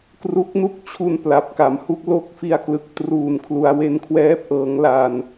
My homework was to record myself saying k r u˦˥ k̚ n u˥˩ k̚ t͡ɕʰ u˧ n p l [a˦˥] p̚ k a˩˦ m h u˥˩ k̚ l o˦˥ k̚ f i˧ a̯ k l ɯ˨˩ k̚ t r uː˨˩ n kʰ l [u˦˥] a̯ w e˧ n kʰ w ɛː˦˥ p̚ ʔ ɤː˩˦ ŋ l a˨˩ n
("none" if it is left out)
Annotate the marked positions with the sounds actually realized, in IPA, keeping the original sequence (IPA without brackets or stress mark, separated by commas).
a˨˩, u˩˦